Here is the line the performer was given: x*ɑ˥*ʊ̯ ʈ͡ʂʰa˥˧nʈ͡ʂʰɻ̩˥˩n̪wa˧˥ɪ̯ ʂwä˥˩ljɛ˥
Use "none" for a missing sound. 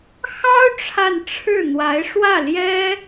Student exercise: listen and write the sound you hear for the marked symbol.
ɑ˥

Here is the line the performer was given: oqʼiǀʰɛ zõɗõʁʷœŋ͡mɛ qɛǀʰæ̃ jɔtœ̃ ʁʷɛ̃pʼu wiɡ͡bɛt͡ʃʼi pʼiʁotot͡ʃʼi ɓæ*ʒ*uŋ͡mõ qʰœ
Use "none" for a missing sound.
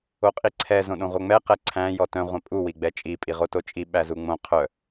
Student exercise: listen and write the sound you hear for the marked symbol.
z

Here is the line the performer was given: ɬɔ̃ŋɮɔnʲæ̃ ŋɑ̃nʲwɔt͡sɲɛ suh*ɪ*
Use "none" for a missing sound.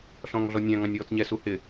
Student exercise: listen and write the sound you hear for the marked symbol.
ɪ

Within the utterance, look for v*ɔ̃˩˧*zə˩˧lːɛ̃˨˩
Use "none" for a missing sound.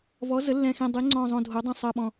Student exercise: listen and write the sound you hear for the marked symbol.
ɔ˩˧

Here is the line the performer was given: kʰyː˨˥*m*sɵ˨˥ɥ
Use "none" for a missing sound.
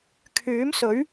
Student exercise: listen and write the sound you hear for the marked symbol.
m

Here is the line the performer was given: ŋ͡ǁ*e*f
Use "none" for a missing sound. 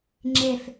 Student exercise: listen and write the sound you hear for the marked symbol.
e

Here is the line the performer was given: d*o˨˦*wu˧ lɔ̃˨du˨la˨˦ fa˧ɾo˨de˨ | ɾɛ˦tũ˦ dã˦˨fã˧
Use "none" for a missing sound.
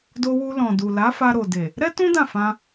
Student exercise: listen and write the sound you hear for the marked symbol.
o˧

